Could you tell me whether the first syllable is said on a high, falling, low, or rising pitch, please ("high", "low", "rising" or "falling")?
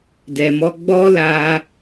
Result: low